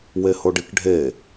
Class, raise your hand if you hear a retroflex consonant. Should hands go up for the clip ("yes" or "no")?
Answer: yes